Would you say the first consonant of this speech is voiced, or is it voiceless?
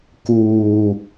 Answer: voiceless